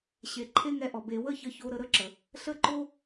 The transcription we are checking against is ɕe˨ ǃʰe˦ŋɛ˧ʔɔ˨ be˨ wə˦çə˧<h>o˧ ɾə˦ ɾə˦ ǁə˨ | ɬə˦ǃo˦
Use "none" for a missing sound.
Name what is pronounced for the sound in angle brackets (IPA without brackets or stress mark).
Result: ç